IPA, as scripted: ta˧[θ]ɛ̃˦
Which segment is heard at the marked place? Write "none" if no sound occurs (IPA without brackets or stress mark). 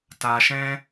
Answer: ʃ